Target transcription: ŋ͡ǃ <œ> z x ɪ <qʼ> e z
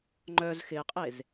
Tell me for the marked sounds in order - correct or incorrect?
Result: correct, correct

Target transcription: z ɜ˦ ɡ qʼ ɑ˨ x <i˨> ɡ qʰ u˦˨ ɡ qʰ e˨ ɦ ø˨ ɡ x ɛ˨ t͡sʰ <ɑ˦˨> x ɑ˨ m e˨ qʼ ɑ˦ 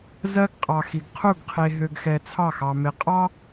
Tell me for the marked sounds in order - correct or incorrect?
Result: correct, correct

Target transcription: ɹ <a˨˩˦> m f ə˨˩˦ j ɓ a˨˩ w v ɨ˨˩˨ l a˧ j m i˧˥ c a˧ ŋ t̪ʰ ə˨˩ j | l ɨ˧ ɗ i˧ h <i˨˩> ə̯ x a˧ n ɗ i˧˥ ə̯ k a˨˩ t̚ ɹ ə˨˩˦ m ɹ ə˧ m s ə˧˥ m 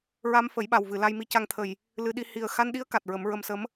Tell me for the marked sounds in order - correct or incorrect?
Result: incorrect, correct

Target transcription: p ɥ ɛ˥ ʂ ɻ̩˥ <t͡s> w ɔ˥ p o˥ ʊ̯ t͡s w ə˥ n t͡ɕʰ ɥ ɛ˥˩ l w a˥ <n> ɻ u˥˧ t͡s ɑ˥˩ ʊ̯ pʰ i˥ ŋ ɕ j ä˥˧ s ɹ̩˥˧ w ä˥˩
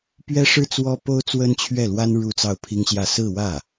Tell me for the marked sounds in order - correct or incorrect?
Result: correct, correct

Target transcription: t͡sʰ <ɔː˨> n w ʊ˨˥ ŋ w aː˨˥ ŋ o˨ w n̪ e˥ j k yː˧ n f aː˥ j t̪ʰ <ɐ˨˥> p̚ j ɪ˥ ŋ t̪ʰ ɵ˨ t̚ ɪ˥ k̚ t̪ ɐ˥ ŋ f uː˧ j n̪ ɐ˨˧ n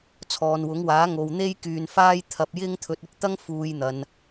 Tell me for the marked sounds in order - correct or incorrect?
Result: correct, incorrect

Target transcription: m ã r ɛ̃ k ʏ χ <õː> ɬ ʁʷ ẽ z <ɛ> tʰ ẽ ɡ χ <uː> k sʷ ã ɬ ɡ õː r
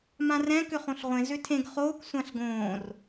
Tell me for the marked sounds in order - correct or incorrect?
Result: incorrect, incorrect, incorrect

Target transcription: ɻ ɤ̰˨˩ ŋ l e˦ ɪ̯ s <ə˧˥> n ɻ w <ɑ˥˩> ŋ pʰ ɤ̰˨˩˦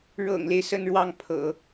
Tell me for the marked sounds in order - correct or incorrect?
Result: incorrect, correct

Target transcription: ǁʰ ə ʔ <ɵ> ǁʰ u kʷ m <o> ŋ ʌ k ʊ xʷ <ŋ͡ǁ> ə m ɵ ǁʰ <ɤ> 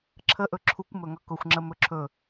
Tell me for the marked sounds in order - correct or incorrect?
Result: correct, incorrect, correct, incorrect

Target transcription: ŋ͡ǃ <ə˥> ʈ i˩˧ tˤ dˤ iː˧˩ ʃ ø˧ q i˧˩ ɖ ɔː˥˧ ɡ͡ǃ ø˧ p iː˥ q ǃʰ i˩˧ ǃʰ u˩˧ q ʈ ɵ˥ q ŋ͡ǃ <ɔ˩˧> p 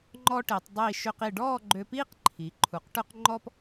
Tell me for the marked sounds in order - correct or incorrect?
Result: incorrect, incorrect

